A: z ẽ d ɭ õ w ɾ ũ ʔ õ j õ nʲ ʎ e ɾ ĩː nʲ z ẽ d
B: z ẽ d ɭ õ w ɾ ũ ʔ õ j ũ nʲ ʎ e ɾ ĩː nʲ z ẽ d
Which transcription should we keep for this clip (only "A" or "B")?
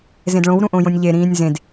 A